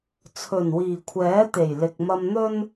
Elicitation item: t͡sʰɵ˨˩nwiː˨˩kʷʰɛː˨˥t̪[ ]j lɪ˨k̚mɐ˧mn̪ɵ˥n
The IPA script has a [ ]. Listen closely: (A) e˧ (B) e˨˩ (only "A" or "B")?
B